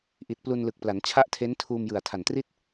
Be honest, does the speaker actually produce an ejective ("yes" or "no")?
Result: no